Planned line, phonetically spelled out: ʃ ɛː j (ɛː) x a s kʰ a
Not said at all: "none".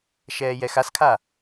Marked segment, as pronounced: ɛ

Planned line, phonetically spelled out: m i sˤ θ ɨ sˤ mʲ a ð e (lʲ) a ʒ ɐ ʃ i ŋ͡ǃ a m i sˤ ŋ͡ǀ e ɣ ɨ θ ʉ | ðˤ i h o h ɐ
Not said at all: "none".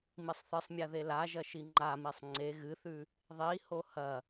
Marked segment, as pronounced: l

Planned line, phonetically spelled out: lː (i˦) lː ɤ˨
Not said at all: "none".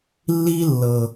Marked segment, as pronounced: i˦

